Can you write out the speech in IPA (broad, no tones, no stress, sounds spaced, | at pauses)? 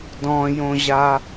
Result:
d ɔ̃ j õ ʑ a